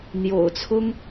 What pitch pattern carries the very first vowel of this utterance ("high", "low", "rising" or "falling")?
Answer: low